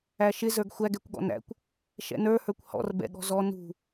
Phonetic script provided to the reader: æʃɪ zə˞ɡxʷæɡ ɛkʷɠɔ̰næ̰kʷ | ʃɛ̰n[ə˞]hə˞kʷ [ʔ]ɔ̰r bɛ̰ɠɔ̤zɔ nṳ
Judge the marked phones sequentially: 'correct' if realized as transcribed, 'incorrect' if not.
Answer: correct, incorrect

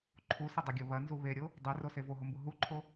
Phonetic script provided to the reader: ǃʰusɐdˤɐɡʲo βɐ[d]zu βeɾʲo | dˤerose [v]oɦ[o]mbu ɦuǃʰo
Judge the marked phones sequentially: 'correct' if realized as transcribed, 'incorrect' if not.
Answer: incorrect, correct, correct

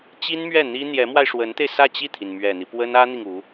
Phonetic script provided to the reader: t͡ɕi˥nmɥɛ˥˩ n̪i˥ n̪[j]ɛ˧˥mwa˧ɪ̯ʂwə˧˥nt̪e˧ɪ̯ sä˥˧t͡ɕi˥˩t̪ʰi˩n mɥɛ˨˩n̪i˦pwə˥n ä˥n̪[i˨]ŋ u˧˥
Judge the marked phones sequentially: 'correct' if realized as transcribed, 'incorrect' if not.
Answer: correct, correct

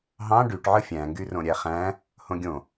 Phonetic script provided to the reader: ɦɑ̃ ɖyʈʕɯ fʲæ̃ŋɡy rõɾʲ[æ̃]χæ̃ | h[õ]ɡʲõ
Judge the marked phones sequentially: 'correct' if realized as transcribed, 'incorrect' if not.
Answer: incorrect, correct

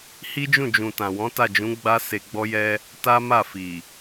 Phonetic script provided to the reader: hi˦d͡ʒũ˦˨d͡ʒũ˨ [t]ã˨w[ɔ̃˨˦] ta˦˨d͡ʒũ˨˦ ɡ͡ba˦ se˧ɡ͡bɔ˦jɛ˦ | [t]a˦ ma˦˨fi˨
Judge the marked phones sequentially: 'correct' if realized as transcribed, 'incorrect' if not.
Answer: correct, correct, correct

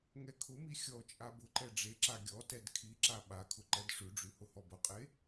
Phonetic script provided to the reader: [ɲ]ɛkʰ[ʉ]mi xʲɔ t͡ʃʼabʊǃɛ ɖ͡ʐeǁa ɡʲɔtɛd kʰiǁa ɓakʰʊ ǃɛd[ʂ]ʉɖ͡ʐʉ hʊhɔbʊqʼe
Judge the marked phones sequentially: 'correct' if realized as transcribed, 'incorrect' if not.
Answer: incorrect, incorrect, correct

